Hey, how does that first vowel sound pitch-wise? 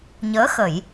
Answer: rising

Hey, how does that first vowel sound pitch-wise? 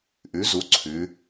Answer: rising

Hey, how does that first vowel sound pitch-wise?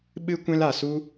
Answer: high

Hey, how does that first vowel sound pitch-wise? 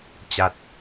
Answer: low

